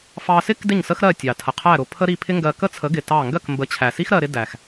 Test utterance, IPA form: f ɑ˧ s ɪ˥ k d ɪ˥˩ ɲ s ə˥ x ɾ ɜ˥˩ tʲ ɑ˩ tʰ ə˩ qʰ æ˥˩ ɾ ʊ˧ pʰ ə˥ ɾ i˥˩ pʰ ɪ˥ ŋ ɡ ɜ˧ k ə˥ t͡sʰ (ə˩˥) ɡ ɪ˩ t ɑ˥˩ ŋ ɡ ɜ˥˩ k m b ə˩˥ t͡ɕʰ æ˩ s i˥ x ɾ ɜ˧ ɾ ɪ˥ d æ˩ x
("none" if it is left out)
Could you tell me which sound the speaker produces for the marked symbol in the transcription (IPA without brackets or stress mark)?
ə˩˥